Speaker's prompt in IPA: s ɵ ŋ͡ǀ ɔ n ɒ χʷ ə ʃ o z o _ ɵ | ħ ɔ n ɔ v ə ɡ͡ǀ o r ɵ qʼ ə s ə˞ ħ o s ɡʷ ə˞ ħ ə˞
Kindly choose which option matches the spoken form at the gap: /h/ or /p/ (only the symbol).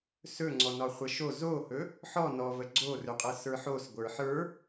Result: h